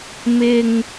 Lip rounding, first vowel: unrounded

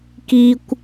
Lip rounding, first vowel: unrounded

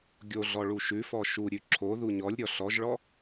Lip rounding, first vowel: rounded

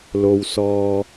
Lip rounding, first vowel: rounded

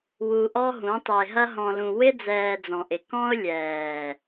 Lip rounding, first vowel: rounded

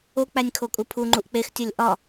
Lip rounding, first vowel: rounded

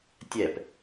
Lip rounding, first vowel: unrounded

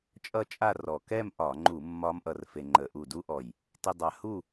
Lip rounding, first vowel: unrounded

